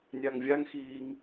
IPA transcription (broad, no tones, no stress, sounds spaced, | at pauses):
nʲ a ŋ vʲ a ŋ x iː ŋ